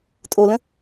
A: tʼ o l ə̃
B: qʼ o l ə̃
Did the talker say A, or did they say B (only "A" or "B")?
A